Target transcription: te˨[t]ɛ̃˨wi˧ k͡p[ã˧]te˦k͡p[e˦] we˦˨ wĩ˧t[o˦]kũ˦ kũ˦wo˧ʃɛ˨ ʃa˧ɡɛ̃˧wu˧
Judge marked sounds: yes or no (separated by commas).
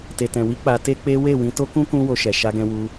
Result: yes, no, yes, yes